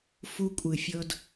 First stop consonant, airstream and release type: ejective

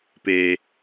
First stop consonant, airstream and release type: plain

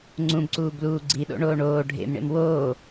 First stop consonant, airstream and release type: click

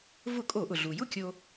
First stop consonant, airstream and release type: ejective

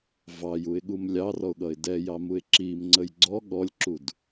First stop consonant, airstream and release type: implosive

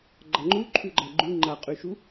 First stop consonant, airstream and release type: click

